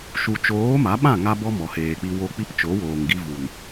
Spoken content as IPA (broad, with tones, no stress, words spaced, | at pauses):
ʃu˨t͡ʃoː˨˦ ma˨˦ɓã˦˨ ŋa˦bɔ˦mɔ˨ heː˨k͡pi˧ wo˧k͡pi˦pt͡ʃo˨˦ woː˨ŋɡi˧vu˨n